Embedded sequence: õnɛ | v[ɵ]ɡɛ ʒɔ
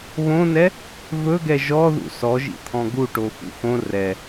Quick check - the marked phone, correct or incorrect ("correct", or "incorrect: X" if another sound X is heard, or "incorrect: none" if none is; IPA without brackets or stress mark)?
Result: correct